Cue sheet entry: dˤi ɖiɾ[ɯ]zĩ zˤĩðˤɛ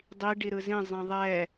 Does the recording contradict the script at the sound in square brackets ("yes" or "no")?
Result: no